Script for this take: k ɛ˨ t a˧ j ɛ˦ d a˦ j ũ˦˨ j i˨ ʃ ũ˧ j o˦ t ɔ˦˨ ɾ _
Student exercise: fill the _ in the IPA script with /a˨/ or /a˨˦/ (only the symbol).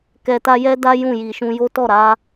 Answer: a˨˦